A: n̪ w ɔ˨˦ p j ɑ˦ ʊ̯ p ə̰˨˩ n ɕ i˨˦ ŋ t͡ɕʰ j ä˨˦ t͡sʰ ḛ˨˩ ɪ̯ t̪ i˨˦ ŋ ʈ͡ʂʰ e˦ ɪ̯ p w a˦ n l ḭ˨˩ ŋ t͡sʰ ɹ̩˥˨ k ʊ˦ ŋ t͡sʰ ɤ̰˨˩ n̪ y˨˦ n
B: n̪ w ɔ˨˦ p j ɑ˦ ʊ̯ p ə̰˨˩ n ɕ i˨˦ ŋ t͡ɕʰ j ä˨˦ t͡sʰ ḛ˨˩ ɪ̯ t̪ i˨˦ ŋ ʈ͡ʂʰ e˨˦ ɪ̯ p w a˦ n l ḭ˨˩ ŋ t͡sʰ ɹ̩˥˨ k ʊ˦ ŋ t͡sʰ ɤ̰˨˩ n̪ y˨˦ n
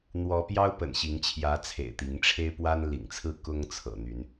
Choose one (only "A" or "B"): A